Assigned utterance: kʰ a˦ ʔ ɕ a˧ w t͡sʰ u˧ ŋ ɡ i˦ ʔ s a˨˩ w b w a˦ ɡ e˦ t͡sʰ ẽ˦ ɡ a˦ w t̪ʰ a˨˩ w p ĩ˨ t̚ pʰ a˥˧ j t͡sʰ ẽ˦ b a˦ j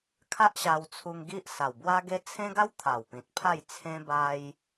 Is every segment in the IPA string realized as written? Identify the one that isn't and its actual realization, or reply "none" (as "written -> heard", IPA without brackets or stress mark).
none